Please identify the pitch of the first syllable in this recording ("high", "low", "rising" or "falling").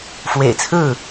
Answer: low